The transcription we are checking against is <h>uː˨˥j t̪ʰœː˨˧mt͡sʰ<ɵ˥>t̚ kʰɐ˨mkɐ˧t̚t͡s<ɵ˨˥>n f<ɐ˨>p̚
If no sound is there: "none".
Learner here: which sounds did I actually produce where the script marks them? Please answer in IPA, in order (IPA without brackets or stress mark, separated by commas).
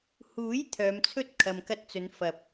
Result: h, ɵ˥, ɵ˨˧, ɐ˨